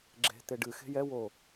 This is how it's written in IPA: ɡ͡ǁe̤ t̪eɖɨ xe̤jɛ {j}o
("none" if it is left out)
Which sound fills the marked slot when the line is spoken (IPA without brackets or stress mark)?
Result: w